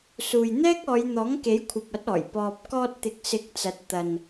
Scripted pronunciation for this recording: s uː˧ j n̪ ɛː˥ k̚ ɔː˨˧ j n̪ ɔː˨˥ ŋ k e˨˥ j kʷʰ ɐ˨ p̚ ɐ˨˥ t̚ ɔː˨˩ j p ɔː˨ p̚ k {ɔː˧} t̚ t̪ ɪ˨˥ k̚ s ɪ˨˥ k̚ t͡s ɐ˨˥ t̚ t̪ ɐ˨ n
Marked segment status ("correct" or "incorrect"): correct